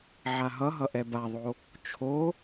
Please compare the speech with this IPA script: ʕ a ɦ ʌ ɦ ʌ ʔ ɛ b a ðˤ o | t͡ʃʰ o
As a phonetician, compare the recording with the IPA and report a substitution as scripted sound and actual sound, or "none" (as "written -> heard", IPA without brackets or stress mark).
none